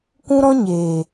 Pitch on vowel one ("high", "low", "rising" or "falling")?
high